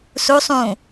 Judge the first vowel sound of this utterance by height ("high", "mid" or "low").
high